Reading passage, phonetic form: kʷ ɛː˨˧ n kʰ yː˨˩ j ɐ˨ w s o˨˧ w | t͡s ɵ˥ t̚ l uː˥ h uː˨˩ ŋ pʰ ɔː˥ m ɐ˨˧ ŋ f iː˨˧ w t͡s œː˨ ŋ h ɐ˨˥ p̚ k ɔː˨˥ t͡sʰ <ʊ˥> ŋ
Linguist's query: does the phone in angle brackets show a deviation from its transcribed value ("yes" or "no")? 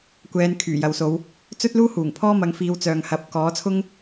no